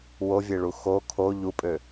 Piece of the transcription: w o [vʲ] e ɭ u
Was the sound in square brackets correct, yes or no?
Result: yes